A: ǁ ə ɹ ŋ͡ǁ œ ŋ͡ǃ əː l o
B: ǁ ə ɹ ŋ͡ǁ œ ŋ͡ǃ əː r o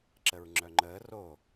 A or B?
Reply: B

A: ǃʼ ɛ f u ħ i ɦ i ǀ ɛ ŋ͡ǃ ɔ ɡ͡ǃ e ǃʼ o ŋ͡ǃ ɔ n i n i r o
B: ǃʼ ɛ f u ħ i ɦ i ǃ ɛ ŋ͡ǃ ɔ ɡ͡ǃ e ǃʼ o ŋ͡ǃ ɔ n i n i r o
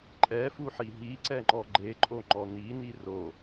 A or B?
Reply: A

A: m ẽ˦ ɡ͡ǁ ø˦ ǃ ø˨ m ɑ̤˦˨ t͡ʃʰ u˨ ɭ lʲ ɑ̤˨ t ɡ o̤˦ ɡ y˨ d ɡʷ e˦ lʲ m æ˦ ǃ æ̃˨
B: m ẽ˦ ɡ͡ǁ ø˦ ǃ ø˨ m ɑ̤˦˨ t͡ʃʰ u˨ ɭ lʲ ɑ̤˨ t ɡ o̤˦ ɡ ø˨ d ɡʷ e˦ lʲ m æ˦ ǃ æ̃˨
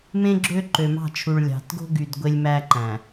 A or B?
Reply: A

